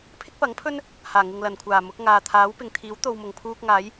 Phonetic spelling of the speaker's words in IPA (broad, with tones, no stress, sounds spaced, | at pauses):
pʰ ɪ˥ k̚ p ɐ˨˥ ŋ pʰ ɵ˥ n | h aː˨˩ ŋ ɪ˨ ŋ l ɐ˨˩ n kʷʰ aː˨˩ m ʊ˨˥ k̚ ŋ aː˨ t̪ʰ aː˨˥ w p ɪ˨ ŋ t̪ʰ iː˨˥ w t̪ o˨ w m ʊ˨˩ ŋ pʰ uː˧ k̚ ŋ aː˨˥ j